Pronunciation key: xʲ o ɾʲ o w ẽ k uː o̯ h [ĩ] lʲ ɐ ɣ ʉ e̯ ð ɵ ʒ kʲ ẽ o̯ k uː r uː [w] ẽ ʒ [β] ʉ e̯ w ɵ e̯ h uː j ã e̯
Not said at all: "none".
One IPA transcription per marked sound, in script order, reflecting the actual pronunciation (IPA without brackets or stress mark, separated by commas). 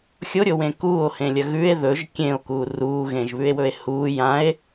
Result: ẽ, ɣ, β